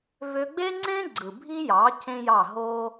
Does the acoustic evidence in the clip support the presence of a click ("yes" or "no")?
yes